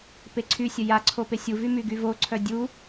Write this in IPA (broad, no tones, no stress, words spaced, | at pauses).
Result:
peǀʰysʲə jaǀʰo pesʲuvy myɡyvoǀʰœ dʲu